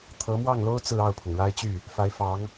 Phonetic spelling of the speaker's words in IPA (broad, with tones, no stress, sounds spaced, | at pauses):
t̪ʰ ɤ˧˥ m w ɑ˥˩ ŋ l o˥ ʊ̯ t͡s ɹ̩˥˧ ɑ˥˩ ʊ̯ pʰ ʊ˩ ŋ ɻ a˥ ɪ̯ t͡ɕ y˥˩ | f a˧˥ ɪ̯ f ɑ˧˥ ŋ